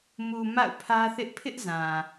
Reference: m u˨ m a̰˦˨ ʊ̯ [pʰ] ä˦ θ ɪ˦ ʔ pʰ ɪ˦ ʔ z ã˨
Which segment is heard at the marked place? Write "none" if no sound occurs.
pʰ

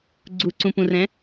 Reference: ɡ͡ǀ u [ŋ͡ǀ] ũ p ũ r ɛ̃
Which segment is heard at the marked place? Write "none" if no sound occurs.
ǀ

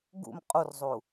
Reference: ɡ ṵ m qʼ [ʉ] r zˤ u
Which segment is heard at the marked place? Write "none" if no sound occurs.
u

